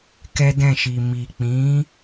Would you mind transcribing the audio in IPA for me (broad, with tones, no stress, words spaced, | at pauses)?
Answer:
kɛ˦dɛ̃˦˨ʃi˨ mi˨k͡pĩ˨˦